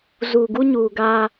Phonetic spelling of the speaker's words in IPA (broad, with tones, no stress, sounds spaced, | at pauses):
z uː˨ ɡ u˦ ɲ uː˨ ɡ aː˦